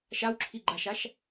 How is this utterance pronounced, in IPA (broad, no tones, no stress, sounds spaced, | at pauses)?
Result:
ʃ a w ǁʰ i ɡ͡ǃ a ʃ a ʃ